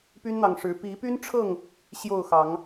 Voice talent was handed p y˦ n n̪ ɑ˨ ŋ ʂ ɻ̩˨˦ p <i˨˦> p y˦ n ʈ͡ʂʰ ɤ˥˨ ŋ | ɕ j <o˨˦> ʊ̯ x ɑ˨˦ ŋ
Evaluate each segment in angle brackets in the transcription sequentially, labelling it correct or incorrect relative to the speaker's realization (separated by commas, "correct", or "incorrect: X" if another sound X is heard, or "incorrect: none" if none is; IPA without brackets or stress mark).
correct, incorrect: o˥˨